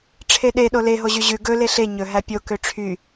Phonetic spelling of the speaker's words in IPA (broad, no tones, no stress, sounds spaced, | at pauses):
ʈ͡ʂʰ e ɗ e ɗ o l e ɦ o ʑ y ʑ ʉ ɡ ɵ l e ɬ e ɲ ɵ ɦ æ pʲ o k ø ʈ͡ʂʰ y